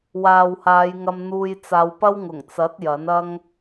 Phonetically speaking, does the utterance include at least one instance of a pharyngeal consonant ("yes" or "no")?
no